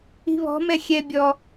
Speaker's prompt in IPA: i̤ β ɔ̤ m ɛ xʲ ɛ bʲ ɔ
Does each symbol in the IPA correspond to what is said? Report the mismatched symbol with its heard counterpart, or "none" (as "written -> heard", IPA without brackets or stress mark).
none